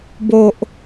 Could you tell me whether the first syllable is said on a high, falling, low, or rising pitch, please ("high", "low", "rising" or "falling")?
low